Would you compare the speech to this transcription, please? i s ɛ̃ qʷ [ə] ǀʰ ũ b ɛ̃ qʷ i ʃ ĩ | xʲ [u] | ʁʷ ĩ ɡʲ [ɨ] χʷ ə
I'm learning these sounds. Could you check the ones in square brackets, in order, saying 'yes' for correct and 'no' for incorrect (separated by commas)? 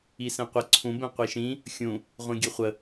yes, no, yes